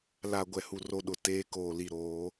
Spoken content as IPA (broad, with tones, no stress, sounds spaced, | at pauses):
l a˨ ɡʷ ɛ˨ h u˨ r o˦ ɗ ʊ˨ t eː˦ k oː˨ l i˨ ɾ oː˨˦